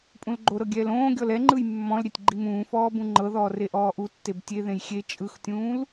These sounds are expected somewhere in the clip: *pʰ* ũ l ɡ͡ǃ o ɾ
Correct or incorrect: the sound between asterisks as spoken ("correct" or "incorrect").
incorrect